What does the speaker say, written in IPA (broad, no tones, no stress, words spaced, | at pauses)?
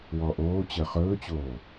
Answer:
wɔʔoː t͡ɕəːχɵːt͡ɕoː